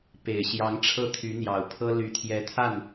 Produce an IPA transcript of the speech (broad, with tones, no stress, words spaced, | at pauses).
pe˨˩ɪ̯ɕjɑ˧˥ŋʈ͡ʂʰɤ˥˩ t̪ʰy˧˥n̪jɑ˨˩ʊ̯pʰɤ˥ ly˧˥t̪ʰjɛ˧˥t̪ʰa˥˩n